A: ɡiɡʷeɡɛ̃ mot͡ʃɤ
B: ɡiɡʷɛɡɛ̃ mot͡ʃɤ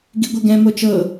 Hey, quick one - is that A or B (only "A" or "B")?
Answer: B